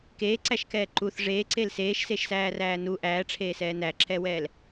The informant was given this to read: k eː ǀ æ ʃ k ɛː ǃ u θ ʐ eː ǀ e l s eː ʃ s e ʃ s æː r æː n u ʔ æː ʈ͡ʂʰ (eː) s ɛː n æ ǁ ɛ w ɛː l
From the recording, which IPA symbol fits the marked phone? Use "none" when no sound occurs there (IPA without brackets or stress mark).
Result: eː